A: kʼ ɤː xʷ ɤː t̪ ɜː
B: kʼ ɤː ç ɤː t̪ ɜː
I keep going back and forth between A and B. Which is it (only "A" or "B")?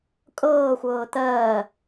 A